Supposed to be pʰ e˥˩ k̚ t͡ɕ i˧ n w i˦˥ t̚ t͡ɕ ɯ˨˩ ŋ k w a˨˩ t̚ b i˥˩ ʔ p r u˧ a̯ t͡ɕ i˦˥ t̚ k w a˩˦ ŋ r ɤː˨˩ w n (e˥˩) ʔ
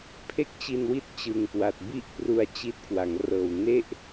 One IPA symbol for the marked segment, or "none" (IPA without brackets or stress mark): e˥˩